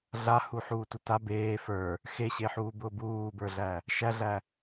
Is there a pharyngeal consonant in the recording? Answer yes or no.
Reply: yes